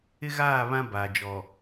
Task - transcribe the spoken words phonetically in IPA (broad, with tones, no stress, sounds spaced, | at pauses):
ɪ˦ ɣ aː˦˨ β ã˦ b a˨ d͡ʒ ɔ˨